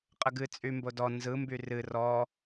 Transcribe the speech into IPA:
qʼ ə ɡ ɨ t͡sʼ y m b o d ɔ n z ɯ m b y r ɨ r ɔ

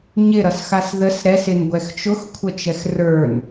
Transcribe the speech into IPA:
ɲ ɪ ɾ ʌ s x a s ð ə s ɾ ɛ s ɪ n ɡʷ ɛ x t͡ʃ ʊ x kʷʰ ə t͡ʃ ɛ x r ə˞ n

